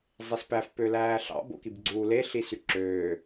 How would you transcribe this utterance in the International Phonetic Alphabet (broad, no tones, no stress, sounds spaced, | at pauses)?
zˤ e s p æ f p ø l æː ɬ ɑ̰ b o̰ k i b ɡ͡ǀ uː l e ɬ i s y ǁ øː